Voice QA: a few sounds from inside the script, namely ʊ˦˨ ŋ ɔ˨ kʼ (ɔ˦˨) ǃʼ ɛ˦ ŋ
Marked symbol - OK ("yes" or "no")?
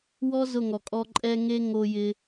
no